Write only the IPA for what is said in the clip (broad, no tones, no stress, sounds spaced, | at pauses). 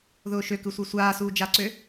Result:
ð ʊː ʃ ø k ɯ sʷ ɯ sʷ aː s uː d͡ʒ a ǀ ø